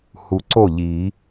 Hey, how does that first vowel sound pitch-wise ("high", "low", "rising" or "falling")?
low